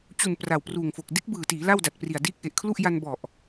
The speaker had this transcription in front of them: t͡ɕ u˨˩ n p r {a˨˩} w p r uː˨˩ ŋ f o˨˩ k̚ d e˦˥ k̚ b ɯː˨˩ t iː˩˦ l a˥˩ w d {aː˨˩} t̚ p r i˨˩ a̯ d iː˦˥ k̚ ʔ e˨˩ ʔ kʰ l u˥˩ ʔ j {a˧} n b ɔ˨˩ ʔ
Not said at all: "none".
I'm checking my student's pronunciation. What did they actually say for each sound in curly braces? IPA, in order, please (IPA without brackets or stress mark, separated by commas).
a˨˩, a˨˩, a˧